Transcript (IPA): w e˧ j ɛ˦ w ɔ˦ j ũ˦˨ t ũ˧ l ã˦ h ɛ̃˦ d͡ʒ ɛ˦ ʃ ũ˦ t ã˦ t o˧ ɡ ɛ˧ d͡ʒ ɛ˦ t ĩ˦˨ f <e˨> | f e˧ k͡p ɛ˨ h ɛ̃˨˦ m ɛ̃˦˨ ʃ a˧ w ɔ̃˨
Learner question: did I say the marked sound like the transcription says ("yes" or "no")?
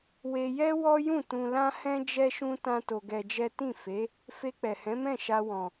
no